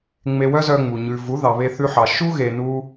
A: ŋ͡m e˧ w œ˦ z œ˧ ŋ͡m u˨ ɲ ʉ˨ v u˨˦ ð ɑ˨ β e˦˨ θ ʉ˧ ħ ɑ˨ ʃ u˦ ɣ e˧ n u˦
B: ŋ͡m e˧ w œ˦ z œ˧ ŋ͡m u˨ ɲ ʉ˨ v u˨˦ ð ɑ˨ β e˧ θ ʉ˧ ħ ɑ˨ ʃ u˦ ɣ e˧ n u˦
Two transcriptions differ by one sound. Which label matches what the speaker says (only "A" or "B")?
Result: B